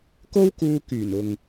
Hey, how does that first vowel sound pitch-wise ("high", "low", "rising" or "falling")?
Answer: high